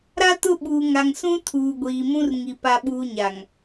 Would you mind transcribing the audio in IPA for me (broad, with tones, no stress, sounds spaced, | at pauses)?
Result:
ɾ a˦ t ʊ˦˨ ɓ uː˨ ŋ a˨ ŋ s ũ˦ tʰ uː˨ ɡʷ iː˨ m ũ˦ r ŋ i˨ p a˦ ɓ uː˦ ɲ a˨ ŋ